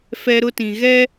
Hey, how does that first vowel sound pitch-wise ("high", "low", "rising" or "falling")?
high